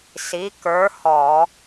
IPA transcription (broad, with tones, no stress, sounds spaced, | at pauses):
s i˨˥ k ə˞˨˥ h ɔ˧˩˧